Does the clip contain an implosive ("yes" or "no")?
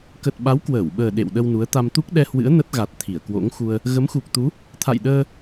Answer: yes